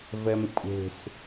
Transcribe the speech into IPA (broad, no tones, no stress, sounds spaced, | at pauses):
v ɛ m kʷʼ e̤ s